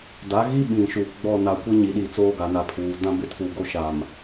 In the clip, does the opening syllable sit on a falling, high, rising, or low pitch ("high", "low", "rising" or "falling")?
rising